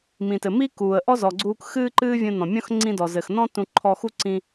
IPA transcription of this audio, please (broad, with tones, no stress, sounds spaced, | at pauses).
m ĩ˩ t ɘ˩ m i˥ k uː˩ ə̯ ʔ ɔ˥ z ɔ˩ ɡ͡ǀ uː˧ k x ɨː˥ ǃ ɨː˥ vʲ ũ˧ n ɔ̃˩ mʲ ɔ̃˥ x ŋ͡ǀ ĩ˧ d ɔ˩ z ɘ˩ x n ɔ̃˥ t ũ˧ ǃʰ ɔ˧ x u˥ ǀ ĩ˧